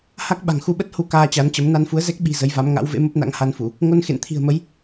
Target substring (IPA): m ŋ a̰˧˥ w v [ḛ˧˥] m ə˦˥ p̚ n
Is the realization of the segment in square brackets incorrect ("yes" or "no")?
no